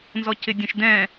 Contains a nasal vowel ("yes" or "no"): yes